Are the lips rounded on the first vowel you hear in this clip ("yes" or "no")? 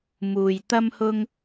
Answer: yes